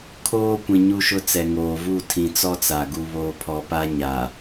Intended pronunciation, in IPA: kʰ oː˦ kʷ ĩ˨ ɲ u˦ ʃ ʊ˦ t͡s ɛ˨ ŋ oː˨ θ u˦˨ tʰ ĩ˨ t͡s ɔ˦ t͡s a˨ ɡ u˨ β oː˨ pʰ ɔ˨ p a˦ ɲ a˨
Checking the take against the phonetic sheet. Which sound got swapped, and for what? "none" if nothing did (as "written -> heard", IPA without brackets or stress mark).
θ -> v